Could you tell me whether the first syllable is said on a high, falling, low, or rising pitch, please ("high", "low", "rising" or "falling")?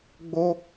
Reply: high